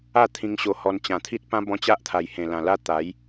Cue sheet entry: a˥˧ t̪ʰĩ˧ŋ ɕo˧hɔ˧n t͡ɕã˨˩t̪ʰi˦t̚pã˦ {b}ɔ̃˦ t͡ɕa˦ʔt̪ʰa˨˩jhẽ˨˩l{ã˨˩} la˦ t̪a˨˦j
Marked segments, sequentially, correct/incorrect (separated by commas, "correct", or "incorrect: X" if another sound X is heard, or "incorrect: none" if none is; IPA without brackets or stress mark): correct, correct